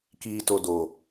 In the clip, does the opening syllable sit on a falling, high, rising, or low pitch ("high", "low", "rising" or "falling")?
low